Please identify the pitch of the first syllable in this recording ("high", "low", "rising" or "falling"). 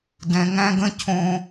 low